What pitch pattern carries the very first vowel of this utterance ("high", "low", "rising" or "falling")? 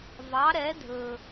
rising